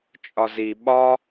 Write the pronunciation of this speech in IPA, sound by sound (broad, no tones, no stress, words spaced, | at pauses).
t͡ʃʼɒzi ɓɒ